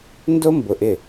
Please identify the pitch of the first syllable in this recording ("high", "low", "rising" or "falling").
high